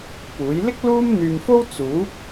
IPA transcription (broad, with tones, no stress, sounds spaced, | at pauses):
p uː˨˥ j l ɪ˥ k̚ l uː˥ m n̪ yː˧ m f o˥ w t͡s uː˨˥ p̚